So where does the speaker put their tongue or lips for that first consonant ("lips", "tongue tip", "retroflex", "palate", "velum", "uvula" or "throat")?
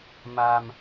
lips